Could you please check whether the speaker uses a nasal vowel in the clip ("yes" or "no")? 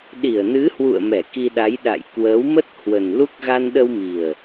no